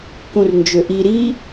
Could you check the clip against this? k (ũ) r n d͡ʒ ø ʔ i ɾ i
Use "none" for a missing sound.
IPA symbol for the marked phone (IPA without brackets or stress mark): ũ